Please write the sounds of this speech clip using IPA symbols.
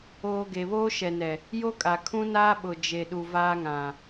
oː˨ ɡ e˨ β oː˦ ʃ ɛ˨ n ɛ˨ | j o˦ kʼ a˨ kʰ ũ˦ n aː˦ ɓ ʊ˨ d͡ʒ e˨ ɗ u˨ v aː˦ ŋ ã˨

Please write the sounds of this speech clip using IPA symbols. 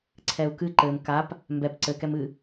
ǀʰ ɛ u̯ k ɨ ǃ ɘ m k a p | m b ɛ p ǀ ɘ k ɛ m ɨ

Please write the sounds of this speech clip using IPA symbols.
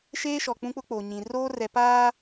ʃ eː˦ ʃ ɔ˨ k͡p ũ˦ k͡p ʊ˦ k͡p o˨ ɲ ĩ˨ r oː˦ r ɛ˨ p aː˦

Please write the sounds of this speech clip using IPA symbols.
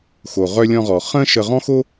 x o˩ ʁ œ˧ lʲ ɔ̃˧ ʁ ɔ˩ χ ə̃˥ ʃ ə˧ ʁ ɔ̃˥ x o˥

